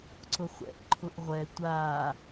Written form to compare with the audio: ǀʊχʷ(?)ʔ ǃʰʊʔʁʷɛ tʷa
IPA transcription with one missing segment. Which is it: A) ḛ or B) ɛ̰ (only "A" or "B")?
B